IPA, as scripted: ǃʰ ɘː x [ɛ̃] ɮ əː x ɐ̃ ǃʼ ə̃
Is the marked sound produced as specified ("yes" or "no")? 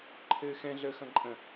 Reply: yes